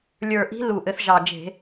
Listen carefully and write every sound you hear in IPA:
lʲ ə˞˨˩ ʔ i̤˧˥ l u˨˩ ʔ ɘ˧˩˧ θ ʒ ɑ˨˩ d͡ʒ e̤˧˩˧

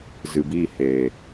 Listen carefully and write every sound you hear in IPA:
z ɨ˨ b i˦˨ h eː˨

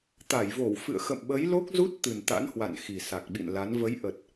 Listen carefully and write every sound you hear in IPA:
t̪ a˧˩ j v o˧˩ w f ɨ̰˧˨ ə̯ x ə̰˧˨ m ɓ ə˨˦ j l o˦˥ k̚ z u˦˥ t̚ t̪ ɨ˨˩ n t̪ a̰˧˥ n h w a̰˧˨ n x i˨˩ s a˨˩ k̚ ɓ ḭ˧˨ n l a˨˦ n v ə˨˦ j ʔ ə˨˩ t̚

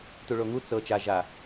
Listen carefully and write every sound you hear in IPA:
t u ɭ o ŋ u t͡s ɤ t͡ʃ a ʒ a

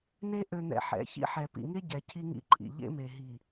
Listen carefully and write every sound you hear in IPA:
n e˦ ʔ ø˨ n̪ ɛ̰˨ ħ ɛ̰˨˦ ç ḭ˦ ħ ɛ˨ p ḭ˨ ŋ e˦ ɟ ɛ˨ cʰ i˦ ŋ ḭ˦ ǃʼ ḭ˨ ʎ ḛ˦ m e˨ ɦ i˨

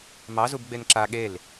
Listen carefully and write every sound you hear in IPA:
m ɑ z u b ɡ͡b e n ǁ a ɠ e l

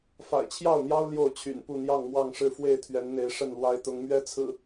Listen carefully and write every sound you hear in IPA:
f a̰˨˩ ɪ̯ t͡ɕʰ j ɑ˥˨ ʊ̯ n̪ j ɑ˦ ʊ̯ l j o˥˨ ʊ̯ t͡ɕʰ y̰˨˩ n p u˥˨ n̪ j ɑ˥˨ ŋ m w ɑ˥˨ ŋ ʂ ɻ̩˥˨ f w e˥˨ ɪ̯ t̪ʰ ɥ ɛ˨˦ n n̪ e˨˦ ɪ̯ ʂ ə˥˨ n l w a˦ ɪ̯ t̪ ʊ˨˦ ŋ m ɥ ɛ˦ t͡sʰ ɹ̩˨˩

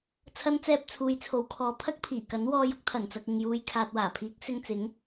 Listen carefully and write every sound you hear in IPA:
t͡sʰ ɐ˧ n t͡s ɛː˧ p̚ t͡sʰ uː˨˧ j t͡sʰ o˨˥ w kʰ ɔː˨ pʰ ɐ˥ k̚ pʰ iː˨˩ k ɐ˨˥ n w ɔː˧ j ʊ˨˥ k̚ t̪ʰ ɐ˨˩ n t͡s ɐ˨ k̚ ɪ˨ ŋ j uː˨ j kʰ aː˨ t̚ w aː˨˩ pʰ iː˨˥ k̚ s ɪ˧ ŋ t͡s ɪ˨˥ ŋ

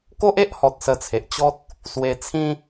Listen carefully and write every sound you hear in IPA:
k o˦ ʔ e˦ ʔ h ɔ˨ t̚ s ə˧ t͡sʰ e˨ ʔ t͡ɕ ɔ˦ t̚ | s w e˧ t͡sʰ ĩ˦

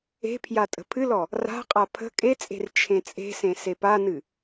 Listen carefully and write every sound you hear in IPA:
e̤ pʰ j a tʼ ə̤ pʰ ɨ l ɔ | r a̤ qʼ a pʰ ə̤ kʼ e t͡sʼ e̤ r t͡ʃʰ ẽ t͡sʼ e̤ s ẽ s e p a n ɨ

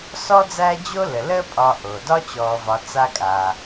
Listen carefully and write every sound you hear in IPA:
s ɔ˦ d͡z æː˦ d͡ʑ o˦ l ə˩ l əː˦ pʼ ɒ˨ ʔ o˩ d ɒ˦ t͡ɕ ɔː˨ v ɒ˨ t͡s a˦ kʼ aː˩

